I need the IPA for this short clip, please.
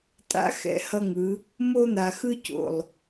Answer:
tʼ a̰˧ x ɛ̰˨ h ʌ˦ ŋ ɯ˨˦ | m o˦ n̪ a˨ x ɯ˦ c o̰˨ lˠ

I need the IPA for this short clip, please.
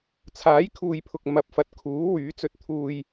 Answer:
t͡sʰ aː˨˥ j kʰ uː˨ j pʰ ʊ˨ k̚ m ɐ˨˥ p̚ f ɐ˨˥ t̚ kʰ uː˨˥ w yː˨˥ t͡s ɵ˧ t̚ t̪ʰ uː˧ j

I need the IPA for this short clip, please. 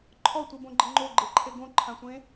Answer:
ǃʰ ɔ tʷ i b õ ɡ͡ǃ ɪ ŋ͡ǃ o ɡ͡ǃ e ǃʰ e ɡ õ ǃʰ ã sʷ ẽ

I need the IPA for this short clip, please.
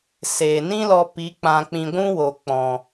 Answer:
s eː˨ n ĩ˦ l ɔ˧ p i˨˦ k͡p ã˧ k͡p ĩ˧ ɡʷ ũ˦ w o˨ k͡p ɔ̃˨

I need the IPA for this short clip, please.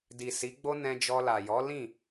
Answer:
d i˨ s i˨˦ ɡ͡b o˦ n ɛ̃˧ d͡ʒ ɔ˧ l a˨ j ɔ˨˦ l ĩ˦˨

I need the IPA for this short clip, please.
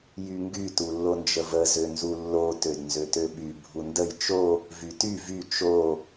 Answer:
j y ŋ ɡ y t u lː o n d͡ʒ ə v ə z ø n z u lː o t ø d n z ø t ø ɓ y bʱ u n d ə j t͡ʃ o | v y t y v y t͡ʃ o

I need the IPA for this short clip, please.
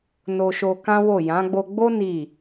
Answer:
n o˧ ʃ o˧ k ã˦ w o˦˨ j ã˨˦ ɡ͡b o˧ ɡ͡b o˦ n i˦˨

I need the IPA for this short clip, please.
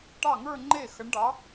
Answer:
ʈ ɑ˥˩ ŋ ə˞˥˧ ŋ͡ǃ e˥˩ x ə˨˥ ɳ ɖ ɑ˨˥

